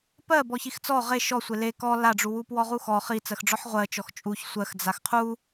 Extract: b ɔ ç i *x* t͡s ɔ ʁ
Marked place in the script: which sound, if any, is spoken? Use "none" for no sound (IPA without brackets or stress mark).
x